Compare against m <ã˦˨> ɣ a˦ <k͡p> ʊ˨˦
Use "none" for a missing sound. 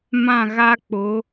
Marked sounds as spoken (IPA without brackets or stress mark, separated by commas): ã˦˨, k͡p